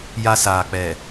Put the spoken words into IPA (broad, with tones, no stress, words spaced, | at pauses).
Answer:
ja˦saː˨k͡pɛ˨